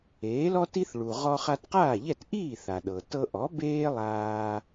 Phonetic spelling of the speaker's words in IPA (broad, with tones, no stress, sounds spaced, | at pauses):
eː˩˥ l ɔ˥ t i˥ θ ɭ u˩ ʁ ɔ˧ χ a˧ t q aː˥˩ ʎ ɛ˥˩ t ʔ iː˥˩ θ a˩ ɗ ɤ˩ t ɤ˧ ʔ ɔ˩˥ b eː˥ lˠ aː˧